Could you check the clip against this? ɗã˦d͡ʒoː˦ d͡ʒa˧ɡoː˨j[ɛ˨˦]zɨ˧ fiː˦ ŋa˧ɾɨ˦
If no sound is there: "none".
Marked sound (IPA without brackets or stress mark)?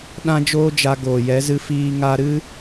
ɛ˨˦